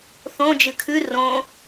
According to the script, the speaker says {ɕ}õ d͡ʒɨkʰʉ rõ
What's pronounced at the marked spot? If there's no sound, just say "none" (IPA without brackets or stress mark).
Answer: θ